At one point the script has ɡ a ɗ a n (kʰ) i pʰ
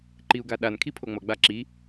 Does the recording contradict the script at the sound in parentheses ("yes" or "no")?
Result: no